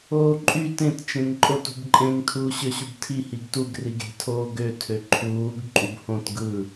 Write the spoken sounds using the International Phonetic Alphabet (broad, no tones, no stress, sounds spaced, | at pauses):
oː ǃʼ y t ẽ t t͡ʃ ẽ ŋ ǃʼ o t ṳ b ǃʼ ẽ ŋ tʰ uː ɕ ø ɕ u b tʰ i h i ɡ t u ɡ r i ɡ e̤ tʰ oː ɡ ø tʰ ø ǃʰ uː ɡ ǃʼ u b h õ t ɡ ɯ